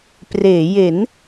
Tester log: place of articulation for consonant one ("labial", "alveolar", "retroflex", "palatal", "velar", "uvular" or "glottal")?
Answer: labial